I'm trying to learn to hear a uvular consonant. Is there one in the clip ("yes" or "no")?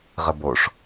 yes